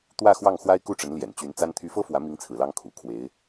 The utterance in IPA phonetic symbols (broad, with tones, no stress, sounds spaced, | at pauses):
t̪ w ä˥˧ x w ɑ˥˩ ŋ x w a˥ ɪ̯ k u˥˩ ʈ͡ʂ ə˧˥ n l j ɛ̰˨˩ n t͡ɕ y˧˥ n t͡s a˥ n t̪ʰ y˧˥ f ɤ˥ f w ä˧˥ m i˧˥ ŋ t͡sʰ ɹ̩˨˩ l ɑ˧˥ ŋ kʰ ṵ˨˩ kʰ w e˧˥ ɪ̯